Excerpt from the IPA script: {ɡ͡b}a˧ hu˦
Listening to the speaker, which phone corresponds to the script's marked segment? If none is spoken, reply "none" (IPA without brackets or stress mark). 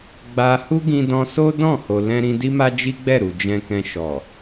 ɡ͡b